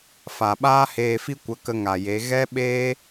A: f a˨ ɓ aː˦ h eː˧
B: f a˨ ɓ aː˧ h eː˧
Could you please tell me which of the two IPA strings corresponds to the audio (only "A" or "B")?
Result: A